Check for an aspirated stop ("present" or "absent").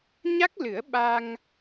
absent